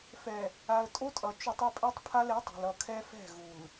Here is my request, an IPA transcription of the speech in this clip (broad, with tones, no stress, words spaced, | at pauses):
fɛ˨ | a˨ə̯tʼo˦tʼʌ˨ t͡ʃu˨tˤ ʌ˦pʼɛ˦tˤpʰa˦l e˨˦tˤe̤˨lʌ˨ kʰɛ˦fɛ̤˦˨ɣu˨l